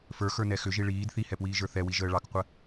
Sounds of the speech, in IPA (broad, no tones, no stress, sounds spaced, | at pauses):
f ə˞ x ə˞ n ɛ x ʏ ʒ i ɭ iː d θ i h ɛ p w iː ʒ ə˞ θ ɛ w i ʒ əː ɭ ɑ k qʷ ə